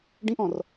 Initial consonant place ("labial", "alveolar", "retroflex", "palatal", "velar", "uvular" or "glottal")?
retroflex